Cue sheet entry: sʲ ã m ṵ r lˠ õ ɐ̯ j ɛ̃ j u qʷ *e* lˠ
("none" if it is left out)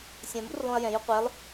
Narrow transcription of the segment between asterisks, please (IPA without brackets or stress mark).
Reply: e